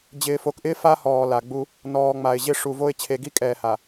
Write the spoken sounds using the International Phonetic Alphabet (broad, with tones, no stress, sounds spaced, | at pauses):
d͡ʑ ɪː˨ f o˨ k ʔ ɪː˦ f a˦ h ɔː˨ l a˨ ɡ͡b u˦ | n ɔː˨ ŋ͡m a˨ ɪ̯ ʑ ɪ˦ ʂ u˨ v o˦ ɪ̯ t͡ɕʰ e˨ ɡ i˦ kʼ ɛː˨ h a˨